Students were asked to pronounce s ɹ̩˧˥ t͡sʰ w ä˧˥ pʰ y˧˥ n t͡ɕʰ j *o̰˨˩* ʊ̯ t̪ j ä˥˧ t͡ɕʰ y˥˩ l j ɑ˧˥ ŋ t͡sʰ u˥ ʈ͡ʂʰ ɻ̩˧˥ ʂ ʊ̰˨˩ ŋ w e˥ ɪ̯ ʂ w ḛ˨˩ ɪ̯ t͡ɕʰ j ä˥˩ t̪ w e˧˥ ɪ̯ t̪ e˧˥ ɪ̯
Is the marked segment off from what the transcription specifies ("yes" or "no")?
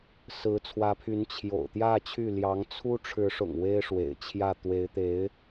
no